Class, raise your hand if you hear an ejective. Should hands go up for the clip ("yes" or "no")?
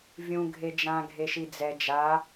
no